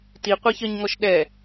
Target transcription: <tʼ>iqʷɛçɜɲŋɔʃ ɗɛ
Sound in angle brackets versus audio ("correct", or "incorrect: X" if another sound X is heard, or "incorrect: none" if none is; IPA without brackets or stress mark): incorrect: t